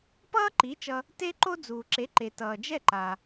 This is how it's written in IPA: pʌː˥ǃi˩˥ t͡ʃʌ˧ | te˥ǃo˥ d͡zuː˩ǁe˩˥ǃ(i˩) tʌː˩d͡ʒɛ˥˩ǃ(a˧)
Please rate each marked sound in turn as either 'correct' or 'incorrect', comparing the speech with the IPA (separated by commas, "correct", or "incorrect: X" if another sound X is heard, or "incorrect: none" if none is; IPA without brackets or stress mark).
incorrect: e˩, incorrect: a˩